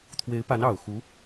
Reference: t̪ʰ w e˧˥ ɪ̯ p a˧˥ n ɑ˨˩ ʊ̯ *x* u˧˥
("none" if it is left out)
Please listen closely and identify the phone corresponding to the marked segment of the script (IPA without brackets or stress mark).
x